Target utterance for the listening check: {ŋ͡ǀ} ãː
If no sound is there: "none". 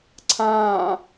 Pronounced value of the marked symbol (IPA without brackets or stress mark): ǀʰ